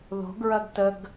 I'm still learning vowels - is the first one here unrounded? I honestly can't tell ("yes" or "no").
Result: no